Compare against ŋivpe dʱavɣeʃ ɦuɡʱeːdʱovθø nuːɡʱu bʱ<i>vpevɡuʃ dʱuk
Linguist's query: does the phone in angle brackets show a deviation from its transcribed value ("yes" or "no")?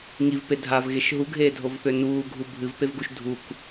yes